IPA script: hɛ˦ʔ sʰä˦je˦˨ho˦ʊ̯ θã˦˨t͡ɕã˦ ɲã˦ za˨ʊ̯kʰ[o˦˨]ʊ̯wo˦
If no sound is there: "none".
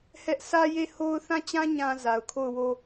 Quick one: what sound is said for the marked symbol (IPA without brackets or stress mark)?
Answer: o˦˨